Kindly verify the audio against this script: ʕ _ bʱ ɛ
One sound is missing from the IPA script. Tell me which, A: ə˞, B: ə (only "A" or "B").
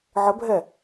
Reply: B